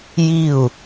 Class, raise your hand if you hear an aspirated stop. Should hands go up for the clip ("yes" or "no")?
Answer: no